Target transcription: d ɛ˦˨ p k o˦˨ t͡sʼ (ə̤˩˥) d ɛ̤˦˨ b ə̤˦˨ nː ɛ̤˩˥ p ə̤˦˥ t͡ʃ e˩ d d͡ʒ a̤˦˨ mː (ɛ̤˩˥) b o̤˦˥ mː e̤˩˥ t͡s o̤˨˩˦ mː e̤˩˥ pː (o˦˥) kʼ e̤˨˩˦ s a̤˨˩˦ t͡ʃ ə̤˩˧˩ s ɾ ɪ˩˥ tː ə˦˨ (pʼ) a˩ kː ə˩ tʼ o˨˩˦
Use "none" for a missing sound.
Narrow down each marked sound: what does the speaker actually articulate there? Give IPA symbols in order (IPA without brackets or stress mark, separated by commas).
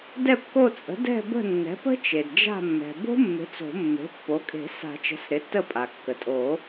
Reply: ə̤˩˥, ɛ̤˩, o˩˥, pʼ